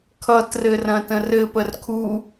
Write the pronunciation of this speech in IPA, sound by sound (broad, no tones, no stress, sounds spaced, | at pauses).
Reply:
kʰ ʌ t r ɘ r ɐ̃ t ə̃ r ɘ p ə r kʰ u